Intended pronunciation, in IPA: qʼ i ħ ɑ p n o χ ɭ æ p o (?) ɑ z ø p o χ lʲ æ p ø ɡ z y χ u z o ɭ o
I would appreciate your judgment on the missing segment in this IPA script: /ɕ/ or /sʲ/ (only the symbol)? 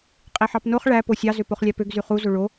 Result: sʲ